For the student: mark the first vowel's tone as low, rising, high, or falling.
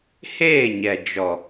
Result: falling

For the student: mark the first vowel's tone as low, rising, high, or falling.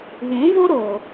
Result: rising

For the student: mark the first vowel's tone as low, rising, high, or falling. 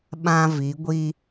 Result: high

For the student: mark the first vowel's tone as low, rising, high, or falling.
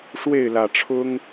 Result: falling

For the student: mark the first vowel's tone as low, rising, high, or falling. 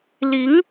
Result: rising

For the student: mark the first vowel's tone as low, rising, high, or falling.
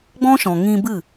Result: high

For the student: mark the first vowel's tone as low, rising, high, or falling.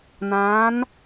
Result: rising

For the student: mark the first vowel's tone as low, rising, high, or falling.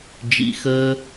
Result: low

